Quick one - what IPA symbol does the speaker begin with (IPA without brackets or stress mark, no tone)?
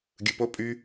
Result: ɡʲ